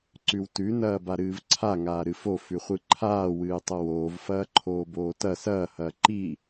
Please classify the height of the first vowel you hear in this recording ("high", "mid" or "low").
high